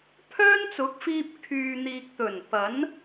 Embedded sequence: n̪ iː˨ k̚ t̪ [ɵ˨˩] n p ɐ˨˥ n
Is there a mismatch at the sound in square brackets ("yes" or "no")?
no